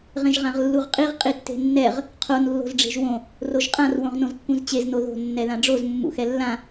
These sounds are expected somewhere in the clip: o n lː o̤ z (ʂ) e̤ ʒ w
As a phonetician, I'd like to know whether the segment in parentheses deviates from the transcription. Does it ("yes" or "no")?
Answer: yes